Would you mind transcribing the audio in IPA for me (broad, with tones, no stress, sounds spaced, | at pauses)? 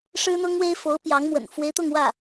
ʂ ɻ̩˥ n̪ ʊ˥ ŋ w e˥ ɪ̯ f o˧˥ ʊ̯ p j ɑ˧˥ ŋ m w ə̰˨˩ n f w e˧˥ ɪ̯ t̪ ʊ˥˧ ŋ w ä˥˩